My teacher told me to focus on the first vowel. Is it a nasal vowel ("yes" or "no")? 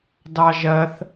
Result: no